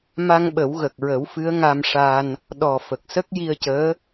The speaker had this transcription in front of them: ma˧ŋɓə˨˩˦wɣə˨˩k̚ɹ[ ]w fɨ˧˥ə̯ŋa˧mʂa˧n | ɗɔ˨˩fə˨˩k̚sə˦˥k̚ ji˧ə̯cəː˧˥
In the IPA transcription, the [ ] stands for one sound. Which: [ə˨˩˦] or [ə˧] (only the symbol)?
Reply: ə˨˩˦